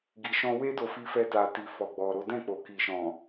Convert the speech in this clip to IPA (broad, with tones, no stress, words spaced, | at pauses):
ɡi˨ʃɔ̃˧we˦do˧ fi˧fɛ˧ta˨ti˨ fɔ˨ɡ͡bɔ˨ɾo˨˦ dɛ̃˦˨k͡po˨ki˨ʃɔ̃˨